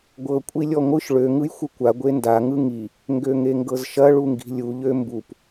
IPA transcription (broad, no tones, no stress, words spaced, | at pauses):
ɡʷɤ kʷʼilʲɔŋʷɯʃ ɭø ŋɯjxʷɯkʷa ɡʷenda ŋɯŋi | ŋɡøŋeŋɡɤzʃɐ ɭuŋɡi̤lʲu ʎømbup